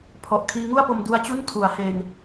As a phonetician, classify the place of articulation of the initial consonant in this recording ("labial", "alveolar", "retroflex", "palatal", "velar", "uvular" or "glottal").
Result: labial